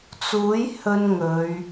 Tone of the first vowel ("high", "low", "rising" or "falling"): rising